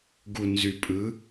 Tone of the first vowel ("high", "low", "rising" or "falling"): low